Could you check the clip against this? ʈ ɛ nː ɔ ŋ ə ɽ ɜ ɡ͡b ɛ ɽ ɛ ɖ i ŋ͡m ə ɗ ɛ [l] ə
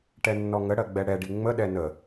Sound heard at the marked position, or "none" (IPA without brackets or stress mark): n